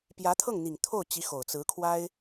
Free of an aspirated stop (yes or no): no